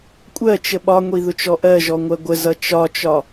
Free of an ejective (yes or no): no